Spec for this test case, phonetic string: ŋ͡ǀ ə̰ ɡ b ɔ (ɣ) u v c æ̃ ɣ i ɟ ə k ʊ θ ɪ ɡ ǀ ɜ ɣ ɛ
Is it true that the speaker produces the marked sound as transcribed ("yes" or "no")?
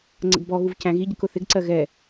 yes